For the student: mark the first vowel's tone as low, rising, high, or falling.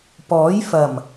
rising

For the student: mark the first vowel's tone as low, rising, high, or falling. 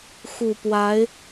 low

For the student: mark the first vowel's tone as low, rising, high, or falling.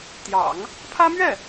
low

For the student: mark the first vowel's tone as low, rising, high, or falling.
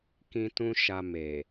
high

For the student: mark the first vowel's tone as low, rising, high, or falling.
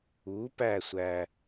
rising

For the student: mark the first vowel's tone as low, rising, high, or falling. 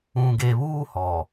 low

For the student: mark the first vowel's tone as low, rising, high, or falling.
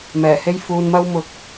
low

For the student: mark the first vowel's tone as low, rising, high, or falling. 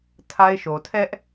high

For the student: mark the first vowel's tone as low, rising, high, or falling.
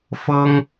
high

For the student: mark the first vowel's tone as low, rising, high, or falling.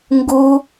high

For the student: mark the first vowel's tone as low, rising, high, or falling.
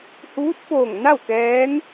rising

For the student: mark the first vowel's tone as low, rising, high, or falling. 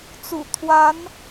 low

